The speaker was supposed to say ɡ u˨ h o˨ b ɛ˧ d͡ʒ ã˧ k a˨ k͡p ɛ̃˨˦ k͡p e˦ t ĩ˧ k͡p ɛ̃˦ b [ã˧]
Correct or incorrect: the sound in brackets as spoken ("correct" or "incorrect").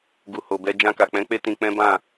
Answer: incorrect